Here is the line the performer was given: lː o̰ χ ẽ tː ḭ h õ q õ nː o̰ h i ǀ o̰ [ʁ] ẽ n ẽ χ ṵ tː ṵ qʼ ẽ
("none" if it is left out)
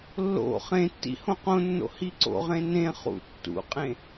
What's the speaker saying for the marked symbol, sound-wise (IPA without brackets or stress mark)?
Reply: ʁ